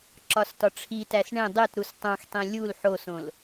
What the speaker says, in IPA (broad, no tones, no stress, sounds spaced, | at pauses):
ǁ ɒ s t ɒ ʈ͡ʂʰ i t æ s ɳ ẽ dˤ e t ɾ u s tˤ õ x tˤ ĩ lʲ u l ħ o s õ l